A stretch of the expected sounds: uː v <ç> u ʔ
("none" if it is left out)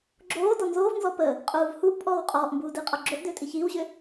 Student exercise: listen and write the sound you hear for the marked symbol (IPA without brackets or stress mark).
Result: h